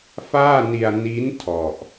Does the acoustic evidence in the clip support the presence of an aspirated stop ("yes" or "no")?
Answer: yes